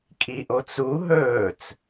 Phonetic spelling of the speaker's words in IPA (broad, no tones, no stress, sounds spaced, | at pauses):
kʼ i ʔ o t͡s u ɦ ɵː t͡s